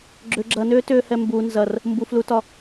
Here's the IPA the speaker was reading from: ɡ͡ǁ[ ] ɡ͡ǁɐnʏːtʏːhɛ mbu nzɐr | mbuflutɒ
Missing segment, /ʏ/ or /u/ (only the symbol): ʏ